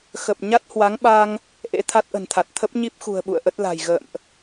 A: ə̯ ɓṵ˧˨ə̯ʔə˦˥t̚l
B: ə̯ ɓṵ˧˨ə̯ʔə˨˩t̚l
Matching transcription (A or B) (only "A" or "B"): A